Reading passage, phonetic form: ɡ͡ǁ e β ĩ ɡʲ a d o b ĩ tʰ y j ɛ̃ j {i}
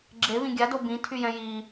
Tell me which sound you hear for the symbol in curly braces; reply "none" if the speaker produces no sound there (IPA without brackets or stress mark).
i